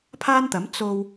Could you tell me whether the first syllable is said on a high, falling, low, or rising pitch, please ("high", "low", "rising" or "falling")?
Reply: high